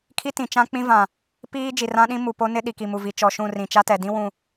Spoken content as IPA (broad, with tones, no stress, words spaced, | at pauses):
kʰi˦tĩ˨ t͡ʃã˦k͡pĩ˦vã˨ | piː˦ d͡ʒi˨rã˦ɗĩ˦ mu˨po˦nɪ˦ ɗi˨ki˨mu˨vi˨ t͡ʃɔ˨ʃũ˦˨rĩ˨ t͡ʃa˦tɛ˨dĩ˦ wũ˨